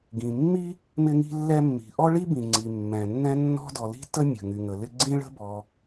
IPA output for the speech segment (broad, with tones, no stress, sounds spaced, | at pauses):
ɡ ĩ˩ mː i˥ | m ɪ˥ ŋ i̤˥ lː ɛ˥ mː i̤˩ ʔ ɔ˥ ɭ i˥ b ĩ˩ ŋ͡ǀ i˩ mː ɛ̃˩ nː ɛ̃˥ nː ɔ̤˥ d ɔ˩ l i̤˥ t ə˥ mʲ ə̤˩ ŋ y˩ ŋ ə˩ l ɪ˥ ɡ͡ǀ ĩ˥ ɭ ə̤˥ b ɔ˩